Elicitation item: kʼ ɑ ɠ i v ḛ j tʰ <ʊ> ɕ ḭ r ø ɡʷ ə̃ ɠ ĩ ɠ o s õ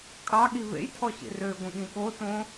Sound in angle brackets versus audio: incorrect: ɔ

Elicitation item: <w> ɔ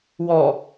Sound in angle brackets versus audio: correct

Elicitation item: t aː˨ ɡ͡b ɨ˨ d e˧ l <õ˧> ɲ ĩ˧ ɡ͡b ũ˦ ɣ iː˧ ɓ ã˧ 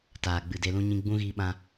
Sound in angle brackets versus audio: incorrect: ũ˧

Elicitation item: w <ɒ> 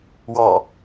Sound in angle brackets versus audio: incorrect: ɑ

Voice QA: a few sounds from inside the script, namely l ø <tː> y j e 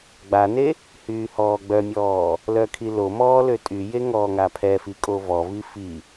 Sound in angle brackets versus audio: incorrect: tʼ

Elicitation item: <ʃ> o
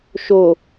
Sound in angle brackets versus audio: correct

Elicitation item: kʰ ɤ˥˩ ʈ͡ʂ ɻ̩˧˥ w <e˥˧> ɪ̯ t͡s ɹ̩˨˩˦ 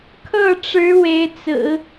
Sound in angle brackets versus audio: incorrect: e˧˥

